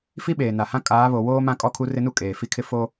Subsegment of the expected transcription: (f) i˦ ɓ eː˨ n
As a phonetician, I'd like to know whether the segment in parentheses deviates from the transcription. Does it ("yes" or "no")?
no